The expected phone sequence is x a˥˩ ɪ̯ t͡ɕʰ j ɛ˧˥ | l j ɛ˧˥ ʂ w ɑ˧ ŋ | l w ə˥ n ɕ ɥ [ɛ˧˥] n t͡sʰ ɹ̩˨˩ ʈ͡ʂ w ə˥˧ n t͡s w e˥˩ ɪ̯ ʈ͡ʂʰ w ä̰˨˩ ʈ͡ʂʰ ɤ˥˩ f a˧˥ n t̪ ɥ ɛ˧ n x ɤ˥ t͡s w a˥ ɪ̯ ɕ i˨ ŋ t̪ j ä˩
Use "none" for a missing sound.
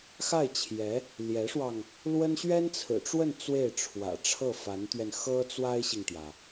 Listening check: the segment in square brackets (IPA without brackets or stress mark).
ɛ˥